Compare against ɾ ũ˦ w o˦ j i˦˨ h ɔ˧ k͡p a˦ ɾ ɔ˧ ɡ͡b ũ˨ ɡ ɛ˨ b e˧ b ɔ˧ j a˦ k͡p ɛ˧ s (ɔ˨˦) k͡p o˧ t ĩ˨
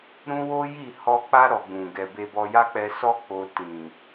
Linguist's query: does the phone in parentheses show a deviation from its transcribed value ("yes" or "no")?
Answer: yes